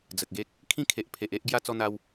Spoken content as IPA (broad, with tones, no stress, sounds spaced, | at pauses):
d͡z ə˨ k̚ ɡ e˦ k̚ | kʰ ĩ˦ kʰ e˨ ʔ pʰ e˨ ʔ e˦ ʔ ɡ j a˦ t͡s ɔ˦ n̪ a˦ w